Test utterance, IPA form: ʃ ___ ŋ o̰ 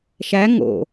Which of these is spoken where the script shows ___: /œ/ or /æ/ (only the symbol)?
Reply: æ